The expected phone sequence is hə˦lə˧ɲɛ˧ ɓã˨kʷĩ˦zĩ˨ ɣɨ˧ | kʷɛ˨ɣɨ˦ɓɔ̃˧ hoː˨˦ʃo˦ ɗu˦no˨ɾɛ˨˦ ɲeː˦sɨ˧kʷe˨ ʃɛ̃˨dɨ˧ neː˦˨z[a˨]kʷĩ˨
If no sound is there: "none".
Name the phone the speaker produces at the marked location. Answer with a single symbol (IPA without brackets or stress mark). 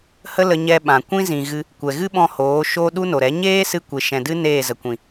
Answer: ə˨